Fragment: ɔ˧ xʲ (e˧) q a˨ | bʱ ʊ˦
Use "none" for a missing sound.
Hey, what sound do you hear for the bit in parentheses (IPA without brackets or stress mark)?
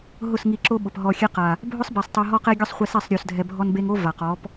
e˧